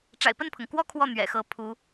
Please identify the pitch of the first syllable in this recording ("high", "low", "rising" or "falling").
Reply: low